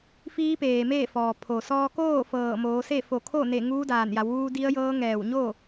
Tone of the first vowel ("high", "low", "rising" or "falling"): rising